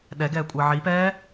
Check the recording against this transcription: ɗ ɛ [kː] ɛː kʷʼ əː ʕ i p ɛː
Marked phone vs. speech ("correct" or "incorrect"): incorrect